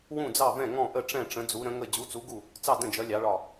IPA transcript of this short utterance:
w ũ˧˩ d͡z ɑ˧˩ v ɛ̃˧˩ ŋ ɔ̃˧˩ ʔ ə˧˩ ʈ͡ʂ ɛ̃˧˩ ʈ͡ʂ ə̃˩˧ d͡z u˩˧ ɾ ə̃˩˧ ŋ ə˧˩ d͡ʑ u˩˧ t͡s u˩˧ ɡ u˧˩ | t͡s ɑ˧˩ d ə̃˧˩ d͡ʒ ʌ˩˧ lʲ ɑ˩˧ ɭ ɒ˧˩

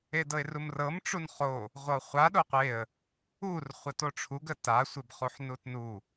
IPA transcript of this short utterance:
e d ɤ ɪ̯ r u m r ɤ m ʈ͡ʂ u n χ o | ʁʷ ɤ χʷ a ɗ o qʷ e ə̯ | u r χʷ ə t o ʈ͡ʂʰ u ɡ ə t a sʷ e b χ u ħ n u t n u

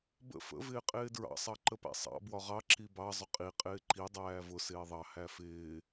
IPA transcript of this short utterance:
b ə̰ f ə̰ v ɪː qʼ ɪː d ɹ ɑ̰ sˤ ɑ ǃ ə p æ̰ sˤ ɑ̰ b w ɒ ʁ ɑ ǁ i b ɑ zˤ ʊ qʼ i qʼ ɪː ǃ i dˤ æː v ʊ s ɪː ðˤ ɑ h æ f ɪː

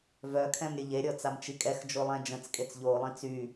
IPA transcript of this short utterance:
v œ kʰ ɛ̃ m ɾʲ ə ʎ e ɾʲ ɔ t͡s a m t͡ʃ i kʼ ɛ x d͡ʒ o lˠ ɛ̃ d͡ʒ ə̃ t͡s kʼ e t͡s ʎ o lˠ ĩ t͡s y

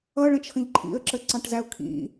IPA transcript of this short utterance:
ʌ ɭ ə̃ t͡ʃʰ ə̃ ʎ ǃʰ ḭ ə̯ ǁ ə ǀ ɑ̃ ʈ z æ ʊ̯ kʰ ḭ

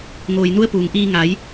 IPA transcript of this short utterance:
ŋ oː˩ j n u˧˥ ə̯ p uː˩ ŋ ʔ iː˧ ŋ a˩˧ j

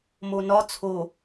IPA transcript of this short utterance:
m o n ɒ t͡sʰ o

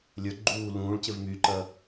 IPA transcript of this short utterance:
lʲ ə˞ ɡ͡ǃ uː l ũː ɭ c ɪ v m y ǃ ɐ

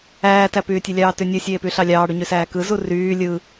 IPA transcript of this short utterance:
æː t æ p yː tʲ e lʲ ɑː t y nʲ ɯ sʲ eː p y ɬ ɑ lʲ ɑː ɽ y ɲ y s æː k ɯ z u r yː lʲ ɯ

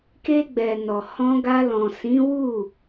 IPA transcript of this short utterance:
k e˧ ɡ͡b ɛ˨ n ɔ˨ h ɔ̃˧ ɡ a˧ l ɔ̃˨ s ĩ˨˦ w u˦˨

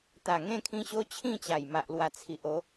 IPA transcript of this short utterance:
t̪ a˨˩ ŋ ẽ˥˧ kʰ ĩ˧ ɕ o˦ t͡ɕʰ ĩ˥˧ t͡ɕ a˨˩ j m a˨ ʔ l w a˨˩ t͡sʰ i˨ ʔ o˨˦

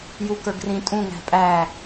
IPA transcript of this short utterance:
j u k ə˞ ɡ r ĩ tʼ ũ ŋ æ̤ pʼ æ

